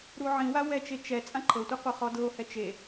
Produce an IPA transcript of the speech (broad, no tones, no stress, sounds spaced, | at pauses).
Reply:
ɾ u ʕ ĩ w a w ɛ t͡ʃ e t͡ʃ ɛ t͡sʼ ã ǃʰ ɤ tʷ e qʷ ɤ χ ɔ d ɤ o̯ h ɛ t͡ʃ e